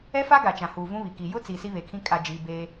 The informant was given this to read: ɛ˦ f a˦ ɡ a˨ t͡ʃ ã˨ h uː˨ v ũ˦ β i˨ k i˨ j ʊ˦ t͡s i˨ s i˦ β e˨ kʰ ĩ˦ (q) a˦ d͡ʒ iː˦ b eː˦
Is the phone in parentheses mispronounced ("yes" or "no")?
yes